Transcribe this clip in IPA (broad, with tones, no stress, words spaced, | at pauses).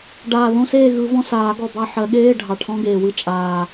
ɖaː˨˩ðõ˧˥˧ seː˦˨ɣɯ˨˩˦vɔ̃˦˨saː˨˩˦ ɡɔ˨˩bɑ˦˨ ħɜ˨˩˦ɠeː˧˥˧ ɖʱɑ˨˩ʈʰɔ̃˧˥˧ɡeː˨˩wɯ˦˨ t͡ʃʼaː˨˩